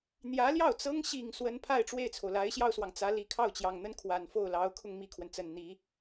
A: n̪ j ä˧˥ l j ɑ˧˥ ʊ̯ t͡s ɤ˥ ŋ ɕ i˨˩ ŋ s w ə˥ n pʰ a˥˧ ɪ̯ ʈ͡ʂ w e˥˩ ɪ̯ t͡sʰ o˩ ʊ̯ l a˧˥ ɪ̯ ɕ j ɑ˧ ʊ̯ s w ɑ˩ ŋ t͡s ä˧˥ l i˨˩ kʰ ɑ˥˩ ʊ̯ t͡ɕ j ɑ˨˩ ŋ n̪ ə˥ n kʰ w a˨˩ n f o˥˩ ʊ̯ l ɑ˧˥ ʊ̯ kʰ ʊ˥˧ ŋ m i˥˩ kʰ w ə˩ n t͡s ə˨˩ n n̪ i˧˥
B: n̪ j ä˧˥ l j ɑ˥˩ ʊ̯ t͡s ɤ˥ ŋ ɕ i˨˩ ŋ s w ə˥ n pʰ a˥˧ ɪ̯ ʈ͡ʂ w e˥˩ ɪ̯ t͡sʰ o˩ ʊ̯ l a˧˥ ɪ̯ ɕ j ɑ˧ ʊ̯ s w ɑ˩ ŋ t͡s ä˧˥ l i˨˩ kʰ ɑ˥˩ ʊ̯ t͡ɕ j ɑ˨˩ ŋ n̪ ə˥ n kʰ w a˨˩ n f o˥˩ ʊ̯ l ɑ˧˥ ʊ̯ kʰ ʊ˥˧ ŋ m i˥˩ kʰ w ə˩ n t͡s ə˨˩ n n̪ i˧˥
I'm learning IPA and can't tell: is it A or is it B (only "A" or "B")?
B